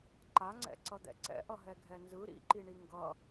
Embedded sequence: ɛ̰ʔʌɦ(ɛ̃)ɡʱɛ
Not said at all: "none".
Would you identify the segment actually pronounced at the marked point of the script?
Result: ɛ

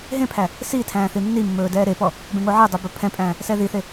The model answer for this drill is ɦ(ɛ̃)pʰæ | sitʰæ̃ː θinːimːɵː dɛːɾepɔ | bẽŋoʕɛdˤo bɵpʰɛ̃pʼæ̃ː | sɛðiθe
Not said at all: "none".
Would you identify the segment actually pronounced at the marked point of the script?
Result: ẽ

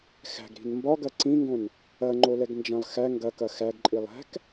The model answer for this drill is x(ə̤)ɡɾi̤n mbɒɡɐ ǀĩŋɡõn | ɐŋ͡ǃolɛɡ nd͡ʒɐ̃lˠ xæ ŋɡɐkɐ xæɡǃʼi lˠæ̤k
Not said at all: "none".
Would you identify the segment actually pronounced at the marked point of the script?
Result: æ̤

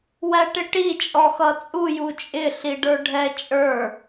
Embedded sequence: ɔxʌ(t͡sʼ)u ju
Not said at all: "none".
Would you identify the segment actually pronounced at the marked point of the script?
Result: t͡sʼ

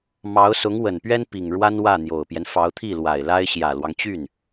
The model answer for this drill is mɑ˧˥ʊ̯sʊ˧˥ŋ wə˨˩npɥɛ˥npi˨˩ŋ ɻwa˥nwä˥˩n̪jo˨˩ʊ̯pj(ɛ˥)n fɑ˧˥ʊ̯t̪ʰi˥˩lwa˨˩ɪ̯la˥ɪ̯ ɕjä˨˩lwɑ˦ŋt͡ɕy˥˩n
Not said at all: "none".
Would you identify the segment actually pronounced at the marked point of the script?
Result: ɛ˦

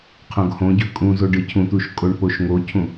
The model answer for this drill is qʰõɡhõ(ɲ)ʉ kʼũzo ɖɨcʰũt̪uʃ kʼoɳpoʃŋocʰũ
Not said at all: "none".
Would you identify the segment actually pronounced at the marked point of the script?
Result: ɟ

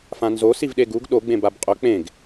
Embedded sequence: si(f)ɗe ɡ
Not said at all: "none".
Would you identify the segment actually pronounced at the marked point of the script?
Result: v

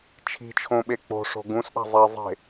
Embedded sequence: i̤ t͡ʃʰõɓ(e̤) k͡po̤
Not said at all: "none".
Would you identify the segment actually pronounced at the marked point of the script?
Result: e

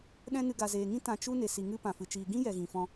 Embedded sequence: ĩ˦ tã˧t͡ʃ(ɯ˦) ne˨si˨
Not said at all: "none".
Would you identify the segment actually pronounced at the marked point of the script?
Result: u˦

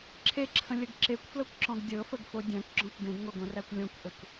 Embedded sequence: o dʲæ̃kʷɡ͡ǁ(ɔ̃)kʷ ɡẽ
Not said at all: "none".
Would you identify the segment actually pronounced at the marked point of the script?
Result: ɔ̃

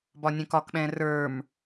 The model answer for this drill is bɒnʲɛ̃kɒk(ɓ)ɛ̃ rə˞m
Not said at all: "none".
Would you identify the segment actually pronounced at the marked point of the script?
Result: ɓ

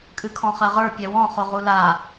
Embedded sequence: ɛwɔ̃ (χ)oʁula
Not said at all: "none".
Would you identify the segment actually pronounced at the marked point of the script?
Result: χ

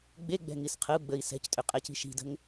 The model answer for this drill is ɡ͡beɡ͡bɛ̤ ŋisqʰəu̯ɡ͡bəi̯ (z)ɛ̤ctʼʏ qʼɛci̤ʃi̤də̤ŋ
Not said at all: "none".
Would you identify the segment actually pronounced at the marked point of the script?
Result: s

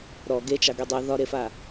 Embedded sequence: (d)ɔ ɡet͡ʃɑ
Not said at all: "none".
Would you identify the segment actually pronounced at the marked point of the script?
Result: ɾ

